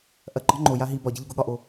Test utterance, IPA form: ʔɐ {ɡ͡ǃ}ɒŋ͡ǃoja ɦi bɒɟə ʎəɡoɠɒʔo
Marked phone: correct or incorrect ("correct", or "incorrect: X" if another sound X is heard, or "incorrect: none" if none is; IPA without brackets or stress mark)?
correct